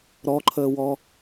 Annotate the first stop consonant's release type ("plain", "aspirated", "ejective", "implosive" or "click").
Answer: click